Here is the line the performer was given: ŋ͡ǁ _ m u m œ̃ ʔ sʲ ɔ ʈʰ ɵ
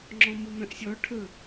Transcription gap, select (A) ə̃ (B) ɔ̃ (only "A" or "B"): B